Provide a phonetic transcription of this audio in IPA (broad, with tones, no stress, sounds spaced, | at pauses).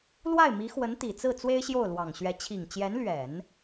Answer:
l w a˥˩ ɪ̯ m i˧˥ x w ə˧˥ n t̪ i˨˩ t͡s ɹ̩˥˩ t͡s w e˥ ɪ̯ ɕ j o˥˩ ʊ̯ l w ɑ˨˩ ŋ ɕ ɥ ɛ˧˥ t͡ɕʰ i˨˩ ŋ t͡ɕ j ɛ˧˥ n l ɥ ɛ˨˩˦ n